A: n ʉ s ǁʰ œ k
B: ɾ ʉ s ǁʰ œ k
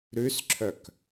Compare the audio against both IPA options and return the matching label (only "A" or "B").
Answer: B